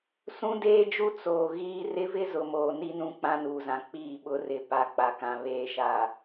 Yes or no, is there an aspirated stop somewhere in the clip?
no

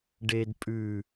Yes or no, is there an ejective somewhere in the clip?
yes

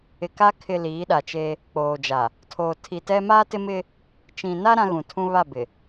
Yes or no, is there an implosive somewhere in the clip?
yes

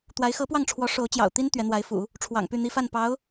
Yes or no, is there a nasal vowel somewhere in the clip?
no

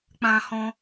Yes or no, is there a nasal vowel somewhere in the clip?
yes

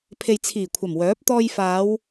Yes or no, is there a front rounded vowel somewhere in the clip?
yes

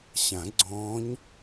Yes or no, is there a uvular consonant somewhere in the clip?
no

